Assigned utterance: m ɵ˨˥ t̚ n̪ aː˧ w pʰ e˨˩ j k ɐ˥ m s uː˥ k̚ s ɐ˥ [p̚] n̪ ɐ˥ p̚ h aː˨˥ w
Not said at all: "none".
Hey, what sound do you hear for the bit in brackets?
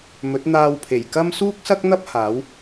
k̚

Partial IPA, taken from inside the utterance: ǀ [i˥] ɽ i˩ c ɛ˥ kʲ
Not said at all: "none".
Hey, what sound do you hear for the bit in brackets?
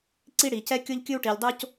i˥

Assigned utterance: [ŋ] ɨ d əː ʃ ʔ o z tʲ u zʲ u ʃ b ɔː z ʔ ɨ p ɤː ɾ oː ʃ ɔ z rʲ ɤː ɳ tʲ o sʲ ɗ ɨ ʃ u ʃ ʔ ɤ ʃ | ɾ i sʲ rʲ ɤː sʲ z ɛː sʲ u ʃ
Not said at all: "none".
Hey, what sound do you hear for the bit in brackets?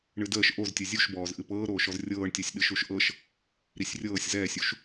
ɳ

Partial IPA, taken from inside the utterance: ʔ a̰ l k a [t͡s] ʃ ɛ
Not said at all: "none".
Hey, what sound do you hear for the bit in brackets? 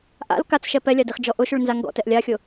t͡s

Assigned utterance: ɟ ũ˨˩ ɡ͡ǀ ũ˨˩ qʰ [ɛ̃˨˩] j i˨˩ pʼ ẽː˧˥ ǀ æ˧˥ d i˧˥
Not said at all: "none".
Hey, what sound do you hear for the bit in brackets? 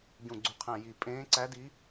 æ̃˨˩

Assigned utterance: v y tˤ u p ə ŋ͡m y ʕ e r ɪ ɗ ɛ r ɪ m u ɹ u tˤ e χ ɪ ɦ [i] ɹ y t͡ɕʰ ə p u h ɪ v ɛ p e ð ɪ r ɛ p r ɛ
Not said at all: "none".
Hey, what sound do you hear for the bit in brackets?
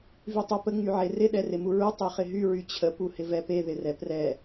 y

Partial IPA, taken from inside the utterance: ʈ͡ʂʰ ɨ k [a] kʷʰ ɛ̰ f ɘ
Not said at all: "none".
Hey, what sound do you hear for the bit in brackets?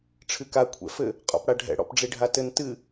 a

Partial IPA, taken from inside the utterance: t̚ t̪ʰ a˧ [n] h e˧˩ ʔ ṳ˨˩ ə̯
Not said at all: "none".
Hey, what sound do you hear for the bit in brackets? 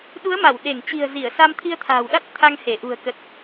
ŋ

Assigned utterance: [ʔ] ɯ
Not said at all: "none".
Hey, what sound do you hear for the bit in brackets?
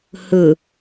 h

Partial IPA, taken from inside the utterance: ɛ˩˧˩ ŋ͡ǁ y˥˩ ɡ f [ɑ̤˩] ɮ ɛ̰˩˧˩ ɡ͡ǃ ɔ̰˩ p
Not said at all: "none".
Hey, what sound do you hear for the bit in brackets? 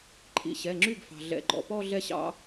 ɑ̤˩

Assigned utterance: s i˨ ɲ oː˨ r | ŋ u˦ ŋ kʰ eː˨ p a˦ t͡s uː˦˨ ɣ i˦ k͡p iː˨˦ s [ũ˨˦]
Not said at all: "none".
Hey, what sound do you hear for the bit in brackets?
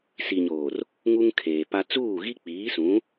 ũ˨˦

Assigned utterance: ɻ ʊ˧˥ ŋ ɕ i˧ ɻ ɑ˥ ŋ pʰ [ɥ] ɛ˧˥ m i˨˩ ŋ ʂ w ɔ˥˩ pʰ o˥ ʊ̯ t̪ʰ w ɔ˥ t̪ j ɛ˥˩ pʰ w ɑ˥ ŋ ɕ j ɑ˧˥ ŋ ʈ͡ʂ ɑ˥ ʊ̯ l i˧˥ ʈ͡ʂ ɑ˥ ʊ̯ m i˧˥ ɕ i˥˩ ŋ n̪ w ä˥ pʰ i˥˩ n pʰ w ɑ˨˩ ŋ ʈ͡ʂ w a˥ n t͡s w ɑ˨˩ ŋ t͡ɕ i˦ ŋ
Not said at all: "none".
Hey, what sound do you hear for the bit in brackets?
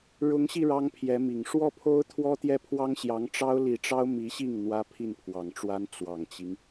j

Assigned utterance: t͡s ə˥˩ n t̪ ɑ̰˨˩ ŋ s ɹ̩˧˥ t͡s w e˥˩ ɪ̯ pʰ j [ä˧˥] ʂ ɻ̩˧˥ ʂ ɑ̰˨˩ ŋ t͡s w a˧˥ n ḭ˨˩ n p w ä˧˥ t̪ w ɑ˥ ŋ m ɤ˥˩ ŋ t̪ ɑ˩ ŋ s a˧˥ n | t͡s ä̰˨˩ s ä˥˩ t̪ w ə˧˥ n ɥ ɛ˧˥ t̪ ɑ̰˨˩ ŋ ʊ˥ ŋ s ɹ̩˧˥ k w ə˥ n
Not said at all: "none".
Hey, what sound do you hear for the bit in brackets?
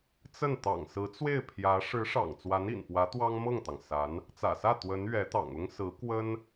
ä˧˥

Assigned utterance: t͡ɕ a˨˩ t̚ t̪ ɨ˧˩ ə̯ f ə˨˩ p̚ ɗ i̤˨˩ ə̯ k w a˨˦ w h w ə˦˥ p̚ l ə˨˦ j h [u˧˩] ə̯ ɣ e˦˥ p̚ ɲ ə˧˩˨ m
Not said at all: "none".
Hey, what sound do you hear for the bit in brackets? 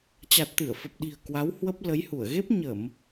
u˧˩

